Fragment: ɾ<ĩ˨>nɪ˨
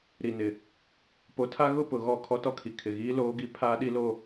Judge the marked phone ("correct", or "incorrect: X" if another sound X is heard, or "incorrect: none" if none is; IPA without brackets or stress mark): incorrect: i˨